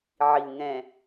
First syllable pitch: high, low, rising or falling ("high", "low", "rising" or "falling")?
low